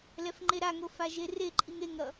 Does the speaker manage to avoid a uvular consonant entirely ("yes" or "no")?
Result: yes